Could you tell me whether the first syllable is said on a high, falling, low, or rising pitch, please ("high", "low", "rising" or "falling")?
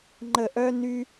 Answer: falling